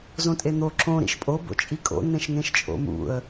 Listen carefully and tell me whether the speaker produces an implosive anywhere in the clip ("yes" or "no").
no